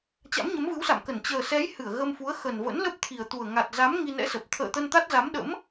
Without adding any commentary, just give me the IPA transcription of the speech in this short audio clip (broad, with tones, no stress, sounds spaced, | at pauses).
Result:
t͡ɕ a̰˧˥ m ɲ ə˨˦ m v ɨ˨˦ w s a̰˧˨ m k ə˧˩ n t͡ɕ əː˨˩ s ɛ˨˦ j h ɨ˧˩ ə̯ ɣ ə˧ m f u˨˦ ə̯ x ə˨˩ n v ə̰˧˥ n l ə˦˥ p̚ t̪ʰ i˨˩ ə̯ t̪ u˨˩ ə̯ ŋ a˨˩ t̚ z a˨˦ m ŋ i˧ n ɛ̰˧˥ s ə˨˩ p̚ t̪ʰ ə̰ː˧˨ t̪ ə˧ n t̪ a˦˥ t̚ z a˨˦ m ɗ ə̰˧˥ m